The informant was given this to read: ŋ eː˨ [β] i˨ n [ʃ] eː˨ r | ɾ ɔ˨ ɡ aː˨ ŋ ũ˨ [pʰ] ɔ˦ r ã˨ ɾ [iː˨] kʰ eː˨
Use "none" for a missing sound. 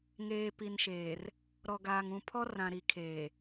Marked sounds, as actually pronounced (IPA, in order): p, ʃ, pʰ, i˨

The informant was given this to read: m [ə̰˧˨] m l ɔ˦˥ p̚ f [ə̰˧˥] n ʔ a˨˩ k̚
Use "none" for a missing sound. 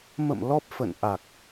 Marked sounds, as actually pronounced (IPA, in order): ə̰˧˨, ə̰˧˨

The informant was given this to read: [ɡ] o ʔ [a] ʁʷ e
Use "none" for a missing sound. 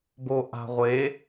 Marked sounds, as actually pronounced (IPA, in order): b, a̤

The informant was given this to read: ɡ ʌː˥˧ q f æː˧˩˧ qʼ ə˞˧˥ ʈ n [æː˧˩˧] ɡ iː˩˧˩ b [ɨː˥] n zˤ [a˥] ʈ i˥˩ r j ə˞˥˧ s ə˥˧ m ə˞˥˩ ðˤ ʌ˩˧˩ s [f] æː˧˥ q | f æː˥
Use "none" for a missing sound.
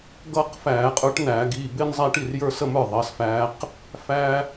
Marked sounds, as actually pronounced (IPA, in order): æː˧˩˧, ɪː˥, æ˥, f

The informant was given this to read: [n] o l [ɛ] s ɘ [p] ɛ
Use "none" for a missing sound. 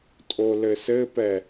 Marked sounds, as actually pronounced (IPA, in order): tʼ, ɘ, p

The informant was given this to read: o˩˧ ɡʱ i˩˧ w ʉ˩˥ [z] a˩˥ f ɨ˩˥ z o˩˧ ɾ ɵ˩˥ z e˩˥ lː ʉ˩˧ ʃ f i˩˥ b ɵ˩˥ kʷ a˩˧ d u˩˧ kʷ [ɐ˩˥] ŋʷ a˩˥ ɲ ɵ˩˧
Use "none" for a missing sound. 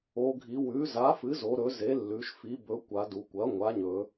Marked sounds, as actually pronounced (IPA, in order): z, ɐ˩˥

